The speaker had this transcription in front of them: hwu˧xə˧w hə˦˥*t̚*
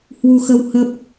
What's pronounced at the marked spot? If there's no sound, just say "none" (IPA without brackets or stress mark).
p̚